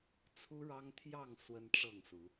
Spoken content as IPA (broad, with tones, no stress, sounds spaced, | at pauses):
t͡sʰ u˦ ɻ ɑ˦ ŋ t̪ʰ j ɑ˥˨ ŋ s w ə˦ n ʈ͡ʂ ɤ˥˨ ŋ s u˨˦